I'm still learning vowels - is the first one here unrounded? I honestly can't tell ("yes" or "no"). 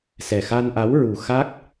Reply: yes